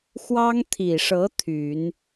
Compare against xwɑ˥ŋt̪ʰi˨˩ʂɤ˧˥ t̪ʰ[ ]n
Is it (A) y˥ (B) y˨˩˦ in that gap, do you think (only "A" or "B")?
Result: B